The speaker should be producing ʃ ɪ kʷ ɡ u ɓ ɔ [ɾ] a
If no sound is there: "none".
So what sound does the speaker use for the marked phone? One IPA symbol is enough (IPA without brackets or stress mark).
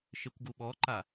ǃ